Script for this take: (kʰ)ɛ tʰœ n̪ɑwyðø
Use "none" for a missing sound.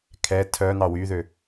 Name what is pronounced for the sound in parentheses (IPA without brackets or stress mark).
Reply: kʰ